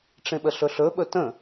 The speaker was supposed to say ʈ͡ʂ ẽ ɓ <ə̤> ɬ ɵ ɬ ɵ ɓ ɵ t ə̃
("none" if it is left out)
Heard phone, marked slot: ə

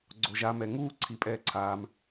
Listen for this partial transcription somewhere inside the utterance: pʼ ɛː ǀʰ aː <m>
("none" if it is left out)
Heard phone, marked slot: m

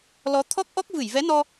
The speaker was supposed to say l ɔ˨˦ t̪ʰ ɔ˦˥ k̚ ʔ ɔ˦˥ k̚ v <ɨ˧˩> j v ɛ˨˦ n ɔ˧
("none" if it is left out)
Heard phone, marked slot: ɨ˧˩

